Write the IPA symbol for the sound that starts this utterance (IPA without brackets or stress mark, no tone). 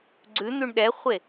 ɡ͡ǀ